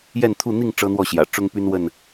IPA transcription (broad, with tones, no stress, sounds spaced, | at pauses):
j ɛ˥˨ n t̪ʰ u˥˨ n̪ i˥˨ ŋ ʈ͡ʂ ɤ˦ n̪ w ɔ˥˨ ɕ j ä̰˨˩ ʈ͡ʂ ʊ˦ ŋ p y˦ n w ə˥˨ n